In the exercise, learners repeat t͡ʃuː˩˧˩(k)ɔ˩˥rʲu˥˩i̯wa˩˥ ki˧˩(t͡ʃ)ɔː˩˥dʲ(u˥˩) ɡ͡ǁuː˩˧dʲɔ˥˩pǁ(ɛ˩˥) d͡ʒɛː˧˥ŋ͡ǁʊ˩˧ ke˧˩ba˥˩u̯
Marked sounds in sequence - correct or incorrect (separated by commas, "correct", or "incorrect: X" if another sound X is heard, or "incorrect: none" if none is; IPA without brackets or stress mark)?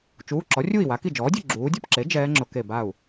incorrect: ǁ, incorrect: d͡ʒ, correct, incorrect: e˩˥